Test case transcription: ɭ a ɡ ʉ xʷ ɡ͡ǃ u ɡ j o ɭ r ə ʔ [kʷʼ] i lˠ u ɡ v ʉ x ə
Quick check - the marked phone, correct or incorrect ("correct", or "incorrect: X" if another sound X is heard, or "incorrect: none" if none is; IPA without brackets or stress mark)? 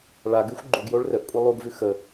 correct